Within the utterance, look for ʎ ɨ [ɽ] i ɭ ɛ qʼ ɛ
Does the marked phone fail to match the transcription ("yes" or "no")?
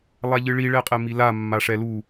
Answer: yes